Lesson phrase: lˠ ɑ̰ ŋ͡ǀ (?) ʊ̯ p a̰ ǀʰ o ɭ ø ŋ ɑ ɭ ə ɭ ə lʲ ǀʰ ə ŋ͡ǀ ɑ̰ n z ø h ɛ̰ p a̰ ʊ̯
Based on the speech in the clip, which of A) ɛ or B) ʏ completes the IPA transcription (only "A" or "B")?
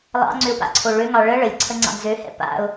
B